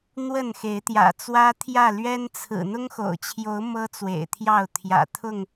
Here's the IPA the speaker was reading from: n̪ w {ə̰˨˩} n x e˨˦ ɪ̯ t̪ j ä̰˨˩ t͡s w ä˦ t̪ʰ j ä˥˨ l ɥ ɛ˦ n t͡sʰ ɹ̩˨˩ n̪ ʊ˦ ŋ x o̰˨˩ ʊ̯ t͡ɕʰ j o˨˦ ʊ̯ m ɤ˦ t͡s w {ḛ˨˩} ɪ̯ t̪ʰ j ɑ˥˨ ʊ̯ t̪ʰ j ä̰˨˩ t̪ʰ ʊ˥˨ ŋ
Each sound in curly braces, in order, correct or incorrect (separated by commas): incorrect, correct